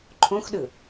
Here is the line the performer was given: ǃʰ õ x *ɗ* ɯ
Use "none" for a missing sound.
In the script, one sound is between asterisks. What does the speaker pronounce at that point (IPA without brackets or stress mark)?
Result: ɗ